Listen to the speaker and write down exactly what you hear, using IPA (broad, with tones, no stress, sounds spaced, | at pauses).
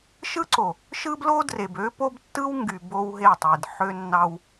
ʃ ɯ˦ ǀ o˨ | ʃ ɯ˦ b l o˦ d r e˨ b ø˦ p o˦ b tː ɯ˦ w ŋ ɡ y˨ b o˦ w ɦ e˦˨ tˤ i˨ d ħ ø˦ nː ɑ˦ w